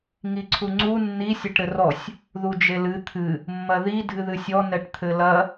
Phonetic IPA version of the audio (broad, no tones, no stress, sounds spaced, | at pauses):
ŋ i ǀʰ u ŋ͡ǀ u nː i sʲ e ʈ ɾ ɘ r ɔ sʲ | ð u d͡ʒ e l ɨ t̪ʰ ɨ | mː ɐ ð i dʱ ɨ ð ɨ sʲ ɔ n ɛ ʈ t̪ʰ ɘ l ɐ